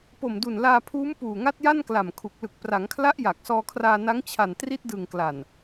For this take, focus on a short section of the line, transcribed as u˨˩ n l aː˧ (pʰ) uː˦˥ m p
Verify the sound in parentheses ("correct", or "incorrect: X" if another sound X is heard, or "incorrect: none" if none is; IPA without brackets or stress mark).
correct